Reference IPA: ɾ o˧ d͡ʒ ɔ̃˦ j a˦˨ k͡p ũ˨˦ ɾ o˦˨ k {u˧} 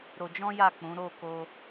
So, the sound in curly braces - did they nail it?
no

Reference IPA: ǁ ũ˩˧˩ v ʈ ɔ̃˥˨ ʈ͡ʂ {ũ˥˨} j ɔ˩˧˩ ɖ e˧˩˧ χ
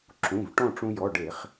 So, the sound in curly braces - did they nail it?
no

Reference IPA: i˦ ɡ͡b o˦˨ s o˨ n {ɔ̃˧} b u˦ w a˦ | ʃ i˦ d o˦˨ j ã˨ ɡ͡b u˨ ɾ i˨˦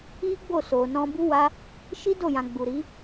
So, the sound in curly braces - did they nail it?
yes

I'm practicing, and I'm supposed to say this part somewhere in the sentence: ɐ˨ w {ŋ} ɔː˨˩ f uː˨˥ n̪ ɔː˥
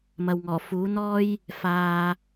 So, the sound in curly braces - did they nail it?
yes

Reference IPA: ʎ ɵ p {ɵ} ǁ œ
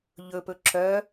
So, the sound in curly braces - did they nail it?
yes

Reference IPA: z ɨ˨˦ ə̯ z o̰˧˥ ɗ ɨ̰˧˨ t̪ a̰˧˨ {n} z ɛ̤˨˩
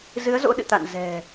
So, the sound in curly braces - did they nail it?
yes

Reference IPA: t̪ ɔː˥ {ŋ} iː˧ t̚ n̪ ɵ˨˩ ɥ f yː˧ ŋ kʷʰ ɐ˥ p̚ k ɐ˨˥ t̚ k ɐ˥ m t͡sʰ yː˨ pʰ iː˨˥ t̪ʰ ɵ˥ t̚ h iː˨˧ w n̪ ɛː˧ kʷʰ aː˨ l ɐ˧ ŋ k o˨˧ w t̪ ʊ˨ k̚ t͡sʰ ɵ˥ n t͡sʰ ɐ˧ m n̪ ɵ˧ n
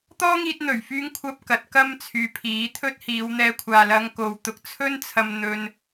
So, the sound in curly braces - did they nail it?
yes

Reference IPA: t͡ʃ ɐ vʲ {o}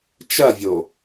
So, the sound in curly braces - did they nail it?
yes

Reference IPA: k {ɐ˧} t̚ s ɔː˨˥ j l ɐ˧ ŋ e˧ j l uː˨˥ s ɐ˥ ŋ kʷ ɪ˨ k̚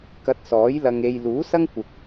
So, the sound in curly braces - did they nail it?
yes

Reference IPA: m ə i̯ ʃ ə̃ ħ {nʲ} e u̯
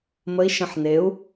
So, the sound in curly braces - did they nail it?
no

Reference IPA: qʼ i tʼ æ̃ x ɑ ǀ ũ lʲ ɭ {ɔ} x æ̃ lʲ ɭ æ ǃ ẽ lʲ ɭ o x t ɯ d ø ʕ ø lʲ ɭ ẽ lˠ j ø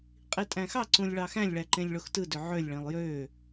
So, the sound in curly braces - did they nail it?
no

